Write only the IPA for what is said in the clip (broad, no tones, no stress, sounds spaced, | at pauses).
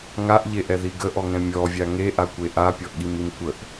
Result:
ŋ a ʔ ʎ e ʔ ɛ ð i ɡ ə ʔ ɔ ŋ ɛ̃ mʲ ɔ vʲ a ŋ e ʔ a kʷ e ʔ a pʲ ɔ ʔ ɠ i m i m kʷ ə ʔ